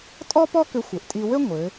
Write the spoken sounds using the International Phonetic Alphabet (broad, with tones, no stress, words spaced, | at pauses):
tʼɔ˥pɔ˥ kʏ˧ xʷɘ˩˧ʔtʼi˧ wɘ˥ ŋʷɘ˩˧